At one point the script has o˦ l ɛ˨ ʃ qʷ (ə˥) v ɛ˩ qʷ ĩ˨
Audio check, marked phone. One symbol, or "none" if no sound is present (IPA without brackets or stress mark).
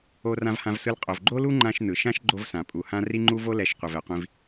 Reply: ə˩